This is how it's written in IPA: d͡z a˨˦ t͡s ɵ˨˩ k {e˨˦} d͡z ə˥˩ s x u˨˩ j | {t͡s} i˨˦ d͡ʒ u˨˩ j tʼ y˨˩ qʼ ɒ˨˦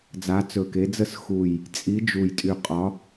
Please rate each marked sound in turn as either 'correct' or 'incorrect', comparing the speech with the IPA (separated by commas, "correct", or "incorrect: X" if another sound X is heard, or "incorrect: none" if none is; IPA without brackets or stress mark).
correct, incorrect: t͡sʼ